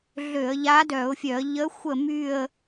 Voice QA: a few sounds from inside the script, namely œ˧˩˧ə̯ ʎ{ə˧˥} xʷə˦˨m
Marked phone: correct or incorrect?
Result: correct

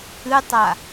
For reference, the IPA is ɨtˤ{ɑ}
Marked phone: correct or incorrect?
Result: incorrect: a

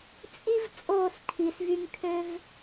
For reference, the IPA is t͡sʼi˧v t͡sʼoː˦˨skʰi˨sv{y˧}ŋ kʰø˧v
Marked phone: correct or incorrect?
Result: correct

